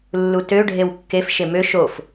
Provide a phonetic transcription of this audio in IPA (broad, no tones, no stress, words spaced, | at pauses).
lːutø ɖʱewkːef ʃemø ʃof